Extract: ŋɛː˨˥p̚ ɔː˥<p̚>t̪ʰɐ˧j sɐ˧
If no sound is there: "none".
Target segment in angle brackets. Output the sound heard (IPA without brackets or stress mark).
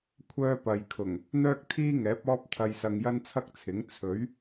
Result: p̚